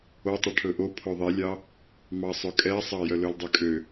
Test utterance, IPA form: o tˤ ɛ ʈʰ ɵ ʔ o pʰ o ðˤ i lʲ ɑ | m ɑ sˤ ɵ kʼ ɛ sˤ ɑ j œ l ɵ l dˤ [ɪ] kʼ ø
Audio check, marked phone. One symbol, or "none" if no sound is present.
y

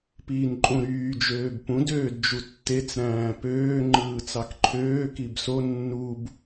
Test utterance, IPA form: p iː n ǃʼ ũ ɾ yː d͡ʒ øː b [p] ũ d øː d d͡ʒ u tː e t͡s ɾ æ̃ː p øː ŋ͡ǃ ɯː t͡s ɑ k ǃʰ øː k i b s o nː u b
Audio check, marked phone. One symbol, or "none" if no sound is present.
p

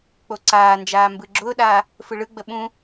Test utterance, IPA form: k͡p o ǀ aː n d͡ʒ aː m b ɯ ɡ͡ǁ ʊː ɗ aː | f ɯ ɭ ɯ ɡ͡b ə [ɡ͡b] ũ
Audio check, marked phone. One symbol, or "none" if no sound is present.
ɓ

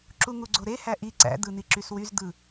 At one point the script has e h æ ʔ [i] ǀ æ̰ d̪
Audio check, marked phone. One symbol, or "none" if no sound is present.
i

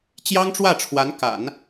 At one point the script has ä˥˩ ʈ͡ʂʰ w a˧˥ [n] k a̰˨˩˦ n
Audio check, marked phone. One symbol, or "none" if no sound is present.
n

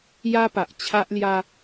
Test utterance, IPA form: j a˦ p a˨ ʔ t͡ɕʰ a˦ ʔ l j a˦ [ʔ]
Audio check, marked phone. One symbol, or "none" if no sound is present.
none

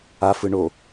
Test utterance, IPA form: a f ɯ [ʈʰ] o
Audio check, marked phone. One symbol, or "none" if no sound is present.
ɳ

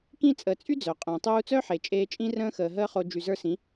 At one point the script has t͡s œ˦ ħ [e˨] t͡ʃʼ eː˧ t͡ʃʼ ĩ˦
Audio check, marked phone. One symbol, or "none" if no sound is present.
e˨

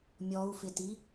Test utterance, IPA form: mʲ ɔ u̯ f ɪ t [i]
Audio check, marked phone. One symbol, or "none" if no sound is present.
i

